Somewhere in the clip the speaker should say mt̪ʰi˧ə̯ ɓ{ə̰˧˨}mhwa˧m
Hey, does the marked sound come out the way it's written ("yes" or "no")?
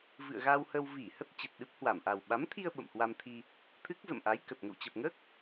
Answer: yes